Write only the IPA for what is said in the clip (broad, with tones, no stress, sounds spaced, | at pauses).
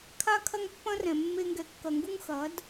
kʰ a˦ kʰ ɐ˦ ŋ pː ɐ̃˦ r ɛ̃˨ mː e˧ ŋ ɡ ɛ˨ kː ɐ˨ ŋ ɡ u˧ ŋ x ɐ˨˦ d